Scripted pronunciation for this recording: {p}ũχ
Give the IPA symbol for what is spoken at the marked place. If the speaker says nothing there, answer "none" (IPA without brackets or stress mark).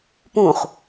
p